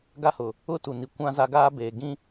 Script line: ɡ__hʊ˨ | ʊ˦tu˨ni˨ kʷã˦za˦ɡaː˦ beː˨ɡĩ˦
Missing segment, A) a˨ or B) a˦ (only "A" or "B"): B